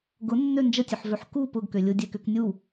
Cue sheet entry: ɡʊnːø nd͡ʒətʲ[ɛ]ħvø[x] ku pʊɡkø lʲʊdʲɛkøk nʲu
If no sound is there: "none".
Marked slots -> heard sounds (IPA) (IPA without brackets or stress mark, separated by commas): ø, ħ